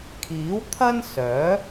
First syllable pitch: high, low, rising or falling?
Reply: rising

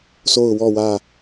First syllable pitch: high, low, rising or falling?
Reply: falling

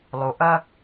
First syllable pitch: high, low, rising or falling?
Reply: low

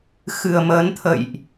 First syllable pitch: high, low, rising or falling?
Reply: low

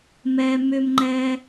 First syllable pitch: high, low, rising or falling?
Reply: high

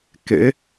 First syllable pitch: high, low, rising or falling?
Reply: rising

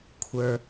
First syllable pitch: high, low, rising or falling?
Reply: low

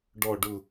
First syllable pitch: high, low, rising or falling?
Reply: falling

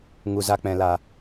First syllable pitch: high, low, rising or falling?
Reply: low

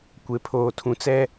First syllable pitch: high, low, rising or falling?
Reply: low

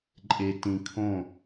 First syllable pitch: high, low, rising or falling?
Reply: low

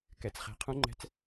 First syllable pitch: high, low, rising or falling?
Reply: rising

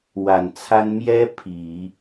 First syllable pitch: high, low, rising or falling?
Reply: low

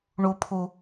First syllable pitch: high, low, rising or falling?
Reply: low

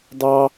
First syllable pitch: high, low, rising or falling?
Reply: high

